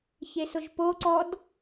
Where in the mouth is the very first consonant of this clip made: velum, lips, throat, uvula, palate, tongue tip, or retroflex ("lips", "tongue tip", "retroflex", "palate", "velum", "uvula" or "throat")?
palate